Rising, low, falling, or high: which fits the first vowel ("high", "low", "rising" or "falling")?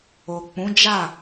low